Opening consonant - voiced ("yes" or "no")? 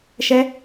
no